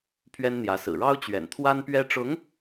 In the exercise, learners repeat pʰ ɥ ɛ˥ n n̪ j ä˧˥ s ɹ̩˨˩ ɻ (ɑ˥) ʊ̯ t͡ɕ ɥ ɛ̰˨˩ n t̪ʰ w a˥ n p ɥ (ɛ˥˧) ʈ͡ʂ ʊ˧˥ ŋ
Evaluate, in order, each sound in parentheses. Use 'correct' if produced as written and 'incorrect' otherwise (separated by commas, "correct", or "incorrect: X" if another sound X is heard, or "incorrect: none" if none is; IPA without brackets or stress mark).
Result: correct, incorrect: ɛ˥